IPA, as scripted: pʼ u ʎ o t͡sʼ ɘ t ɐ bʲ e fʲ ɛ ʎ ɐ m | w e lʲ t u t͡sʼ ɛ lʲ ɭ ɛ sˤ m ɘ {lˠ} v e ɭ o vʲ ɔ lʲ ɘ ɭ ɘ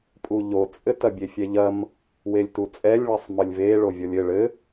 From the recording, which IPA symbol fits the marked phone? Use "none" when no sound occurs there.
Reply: lʲ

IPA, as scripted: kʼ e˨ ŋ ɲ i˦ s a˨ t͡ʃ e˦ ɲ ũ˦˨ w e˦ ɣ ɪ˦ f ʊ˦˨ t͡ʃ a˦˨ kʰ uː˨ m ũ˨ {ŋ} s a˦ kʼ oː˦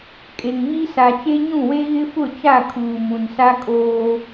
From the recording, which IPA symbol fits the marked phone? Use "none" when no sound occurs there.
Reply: n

